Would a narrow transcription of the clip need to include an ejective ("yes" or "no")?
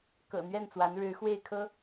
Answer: no